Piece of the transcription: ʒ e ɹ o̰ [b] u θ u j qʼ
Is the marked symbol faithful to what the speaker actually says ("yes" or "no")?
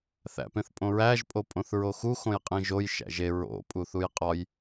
no